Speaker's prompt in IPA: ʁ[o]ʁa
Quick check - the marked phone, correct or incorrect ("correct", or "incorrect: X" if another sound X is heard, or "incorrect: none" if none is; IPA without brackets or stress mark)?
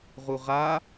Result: incorrect: u